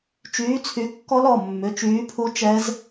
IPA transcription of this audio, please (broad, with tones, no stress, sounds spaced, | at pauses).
t͡ʃ yː˨˥ t͡sʰ y˨˥ kː ɔ˦˥ l ɔ˩˧˩ mː ʏ˩˧˩ t͡ʃ yː˨˥ pʰ u˦˥ t͡ʃ ɛ˦˥ z